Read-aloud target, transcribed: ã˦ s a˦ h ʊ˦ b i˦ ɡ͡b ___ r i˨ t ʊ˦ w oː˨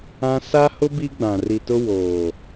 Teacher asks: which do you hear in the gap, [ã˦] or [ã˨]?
ã˨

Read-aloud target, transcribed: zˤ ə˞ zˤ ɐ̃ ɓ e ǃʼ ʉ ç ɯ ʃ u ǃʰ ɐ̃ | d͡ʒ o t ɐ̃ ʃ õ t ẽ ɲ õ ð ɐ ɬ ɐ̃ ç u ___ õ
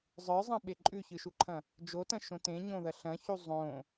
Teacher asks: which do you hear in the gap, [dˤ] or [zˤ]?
zˤ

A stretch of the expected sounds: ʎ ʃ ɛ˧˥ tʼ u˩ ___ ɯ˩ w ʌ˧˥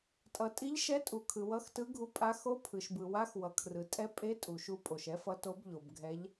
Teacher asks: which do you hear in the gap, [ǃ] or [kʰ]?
kʰ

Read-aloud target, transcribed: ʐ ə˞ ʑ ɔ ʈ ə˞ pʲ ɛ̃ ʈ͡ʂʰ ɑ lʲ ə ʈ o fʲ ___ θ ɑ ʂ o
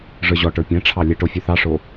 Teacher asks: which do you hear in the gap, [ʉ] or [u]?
ʉ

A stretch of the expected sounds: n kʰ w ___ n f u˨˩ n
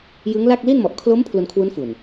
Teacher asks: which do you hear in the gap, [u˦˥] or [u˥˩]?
u˦˥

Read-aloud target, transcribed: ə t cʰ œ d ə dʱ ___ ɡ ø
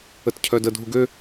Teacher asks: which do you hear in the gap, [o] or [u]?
u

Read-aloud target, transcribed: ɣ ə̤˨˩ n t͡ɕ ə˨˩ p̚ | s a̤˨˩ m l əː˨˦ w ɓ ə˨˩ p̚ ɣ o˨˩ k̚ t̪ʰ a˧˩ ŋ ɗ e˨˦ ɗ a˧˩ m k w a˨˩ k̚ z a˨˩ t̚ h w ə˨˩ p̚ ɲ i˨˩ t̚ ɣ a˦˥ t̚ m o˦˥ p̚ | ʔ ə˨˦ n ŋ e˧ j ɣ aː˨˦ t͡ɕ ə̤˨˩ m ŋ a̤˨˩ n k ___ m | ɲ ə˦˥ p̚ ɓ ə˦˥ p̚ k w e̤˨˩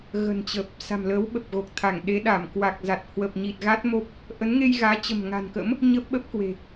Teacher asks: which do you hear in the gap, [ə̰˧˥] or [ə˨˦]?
ə̰˧˥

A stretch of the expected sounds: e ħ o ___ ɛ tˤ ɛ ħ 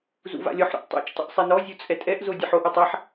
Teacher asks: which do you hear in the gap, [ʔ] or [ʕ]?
ʔ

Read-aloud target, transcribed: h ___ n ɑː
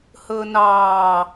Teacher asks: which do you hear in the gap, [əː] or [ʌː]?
əː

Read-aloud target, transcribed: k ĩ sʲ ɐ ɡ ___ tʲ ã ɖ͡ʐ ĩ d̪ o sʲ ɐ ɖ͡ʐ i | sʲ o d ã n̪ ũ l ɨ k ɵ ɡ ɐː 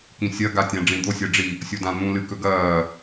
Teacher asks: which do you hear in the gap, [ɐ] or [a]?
a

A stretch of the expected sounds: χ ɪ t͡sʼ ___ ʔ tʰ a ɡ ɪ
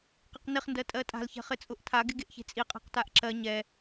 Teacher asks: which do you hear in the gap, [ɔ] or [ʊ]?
ʊ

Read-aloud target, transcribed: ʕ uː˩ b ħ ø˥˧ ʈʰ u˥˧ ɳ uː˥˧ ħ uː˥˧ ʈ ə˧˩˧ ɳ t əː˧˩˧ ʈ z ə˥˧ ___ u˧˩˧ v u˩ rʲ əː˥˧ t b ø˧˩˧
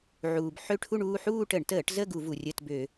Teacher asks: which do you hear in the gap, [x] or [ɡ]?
ɡ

